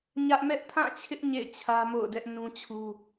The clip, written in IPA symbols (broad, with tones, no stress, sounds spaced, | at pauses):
ɲ ä˦ ʔ m ɛ˦ ʔ pʰ ã˦˨ t͡ɕʰ ɪ˦ ʔ ɲ ḛ˦˨ ɪ̯ t͡ɕʰ ä˦ m o̰˦˨ ʊ̯ d ɛ˦ ʔ n ũ˦ t͡ɕʰ u˦